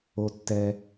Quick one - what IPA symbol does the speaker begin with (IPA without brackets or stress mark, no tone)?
o